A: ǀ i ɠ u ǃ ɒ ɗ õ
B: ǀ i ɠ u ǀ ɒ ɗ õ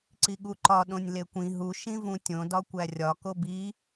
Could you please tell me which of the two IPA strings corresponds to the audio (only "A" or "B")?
A